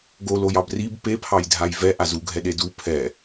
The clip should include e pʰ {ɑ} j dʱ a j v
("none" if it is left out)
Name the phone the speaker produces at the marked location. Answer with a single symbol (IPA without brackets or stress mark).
ɑ